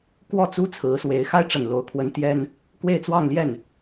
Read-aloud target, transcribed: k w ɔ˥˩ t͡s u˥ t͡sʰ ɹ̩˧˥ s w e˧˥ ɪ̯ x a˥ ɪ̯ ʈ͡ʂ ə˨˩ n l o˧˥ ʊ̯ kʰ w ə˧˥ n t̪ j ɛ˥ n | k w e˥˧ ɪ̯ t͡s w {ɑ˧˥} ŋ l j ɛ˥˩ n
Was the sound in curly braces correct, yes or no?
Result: no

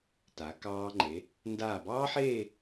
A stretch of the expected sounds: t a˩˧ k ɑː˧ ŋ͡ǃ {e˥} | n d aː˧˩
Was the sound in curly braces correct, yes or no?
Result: no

